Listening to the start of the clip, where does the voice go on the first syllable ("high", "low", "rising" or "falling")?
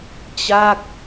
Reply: falling